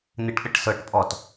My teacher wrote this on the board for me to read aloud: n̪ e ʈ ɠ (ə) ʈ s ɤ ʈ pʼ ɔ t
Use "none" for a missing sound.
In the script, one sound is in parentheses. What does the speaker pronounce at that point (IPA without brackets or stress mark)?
ə